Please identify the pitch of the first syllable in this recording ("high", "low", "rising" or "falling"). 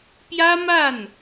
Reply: high